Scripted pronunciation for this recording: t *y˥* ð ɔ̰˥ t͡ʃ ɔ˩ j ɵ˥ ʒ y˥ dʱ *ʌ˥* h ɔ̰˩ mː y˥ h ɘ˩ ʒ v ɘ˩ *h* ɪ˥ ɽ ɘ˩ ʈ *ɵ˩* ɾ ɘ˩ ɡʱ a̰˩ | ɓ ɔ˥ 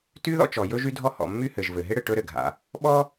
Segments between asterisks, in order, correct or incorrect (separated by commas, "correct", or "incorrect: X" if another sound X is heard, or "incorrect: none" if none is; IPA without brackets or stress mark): correct, incorrect: ɔ˥, incorrect: ɦ, incorrect: ɵ˥